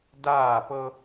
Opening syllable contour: falling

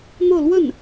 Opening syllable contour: falling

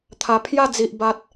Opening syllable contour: low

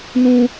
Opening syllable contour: high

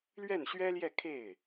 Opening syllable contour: falling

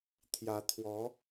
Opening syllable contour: rising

